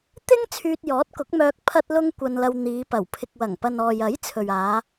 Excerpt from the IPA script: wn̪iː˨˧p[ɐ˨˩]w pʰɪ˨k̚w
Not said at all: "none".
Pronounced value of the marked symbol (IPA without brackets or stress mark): ɐ˨˩